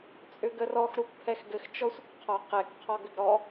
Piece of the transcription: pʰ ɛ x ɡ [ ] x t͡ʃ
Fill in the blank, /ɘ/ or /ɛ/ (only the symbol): ɘ